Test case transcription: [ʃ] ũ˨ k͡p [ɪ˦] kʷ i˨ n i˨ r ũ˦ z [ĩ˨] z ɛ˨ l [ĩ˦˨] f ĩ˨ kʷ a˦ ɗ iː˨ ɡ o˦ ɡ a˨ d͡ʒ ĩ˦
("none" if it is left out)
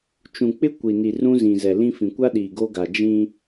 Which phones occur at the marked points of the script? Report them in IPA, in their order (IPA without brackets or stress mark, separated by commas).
t͡ʃ, ɪ˦, ĩ˨, ĩ˦